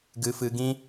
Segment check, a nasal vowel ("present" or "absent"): present